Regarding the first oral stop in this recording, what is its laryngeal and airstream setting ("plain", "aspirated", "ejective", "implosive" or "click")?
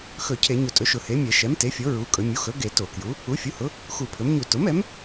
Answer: aspirated